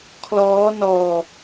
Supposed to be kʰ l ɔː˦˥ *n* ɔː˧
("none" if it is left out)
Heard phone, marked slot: n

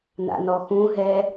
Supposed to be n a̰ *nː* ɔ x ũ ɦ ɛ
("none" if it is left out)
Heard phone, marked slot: n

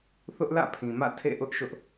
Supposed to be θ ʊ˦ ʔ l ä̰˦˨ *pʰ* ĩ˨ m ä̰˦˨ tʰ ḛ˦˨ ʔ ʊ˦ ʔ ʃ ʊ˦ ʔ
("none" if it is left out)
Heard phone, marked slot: pʰ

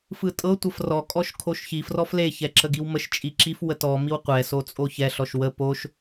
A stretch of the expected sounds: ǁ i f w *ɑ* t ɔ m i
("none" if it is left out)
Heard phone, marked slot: ə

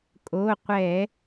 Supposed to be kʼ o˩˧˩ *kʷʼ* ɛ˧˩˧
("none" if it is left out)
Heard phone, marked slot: qʷ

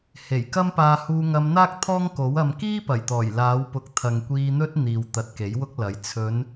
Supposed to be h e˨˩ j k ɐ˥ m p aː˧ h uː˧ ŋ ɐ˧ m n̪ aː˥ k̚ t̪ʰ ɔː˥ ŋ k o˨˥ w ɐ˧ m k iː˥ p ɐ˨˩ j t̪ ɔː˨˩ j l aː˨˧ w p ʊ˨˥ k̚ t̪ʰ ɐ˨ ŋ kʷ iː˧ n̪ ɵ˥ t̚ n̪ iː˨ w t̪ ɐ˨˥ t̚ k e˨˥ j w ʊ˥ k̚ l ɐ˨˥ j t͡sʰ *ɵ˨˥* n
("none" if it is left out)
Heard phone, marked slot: ɵ˨˧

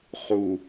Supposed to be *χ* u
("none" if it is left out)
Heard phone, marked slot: χ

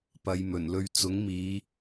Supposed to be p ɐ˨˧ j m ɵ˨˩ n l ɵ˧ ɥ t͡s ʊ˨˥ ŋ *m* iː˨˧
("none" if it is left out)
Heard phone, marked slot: m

